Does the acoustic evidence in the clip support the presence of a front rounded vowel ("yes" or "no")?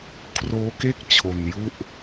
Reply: no